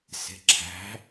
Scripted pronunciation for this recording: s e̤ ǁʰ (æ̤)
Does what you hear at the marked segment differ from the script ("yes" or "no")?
no